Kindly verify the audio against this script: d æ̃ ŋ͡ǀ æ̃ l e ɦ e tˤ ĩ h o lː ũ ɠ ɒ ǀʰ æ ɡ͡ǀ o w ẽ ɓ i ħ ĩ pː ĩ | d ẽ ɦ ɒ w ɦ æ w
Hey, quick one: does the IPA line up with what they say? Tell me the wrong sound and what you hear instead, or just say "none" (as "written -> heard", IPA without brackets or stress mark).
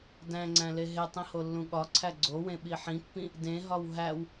none